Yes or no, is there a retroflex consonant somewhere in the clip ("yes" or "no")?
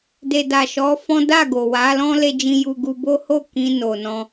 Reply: no